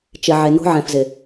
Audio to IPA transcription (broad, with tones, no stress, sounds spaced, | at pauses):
t͡ʃ ɪ˨ ʕ e˨ n o̤˦ ʕ ɛ̃˨ f z ɪ˨